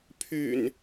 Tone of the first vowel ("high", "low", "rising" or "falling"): low